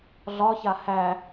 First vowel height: low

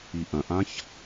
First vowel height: high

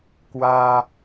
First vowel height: low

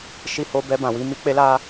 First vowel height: high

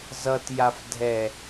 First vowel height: mid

